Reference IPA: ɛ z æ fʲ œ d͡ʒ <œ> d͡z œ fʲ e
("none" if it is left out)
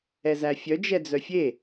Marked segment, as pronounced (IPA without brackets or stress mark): ɛ